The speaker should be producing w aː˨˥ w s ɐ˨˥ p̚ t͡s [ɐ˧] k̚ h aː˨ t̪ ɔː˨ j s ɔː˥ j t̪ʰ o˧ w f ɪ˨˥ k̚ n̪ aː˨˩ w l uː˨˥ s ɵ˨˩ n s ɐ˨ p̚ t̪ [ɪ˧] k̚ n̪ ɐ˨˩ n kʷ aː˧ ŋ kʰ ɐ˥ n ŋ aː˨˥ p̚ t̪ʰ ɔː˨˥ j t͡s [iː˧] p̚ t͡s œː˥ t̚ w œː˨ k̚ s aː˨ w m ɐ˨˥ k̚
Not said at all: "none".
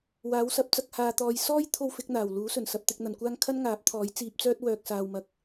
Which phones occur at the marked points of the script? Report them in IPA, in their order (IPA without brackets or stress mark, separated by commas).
ɐ˧, ɪ˨, iː˧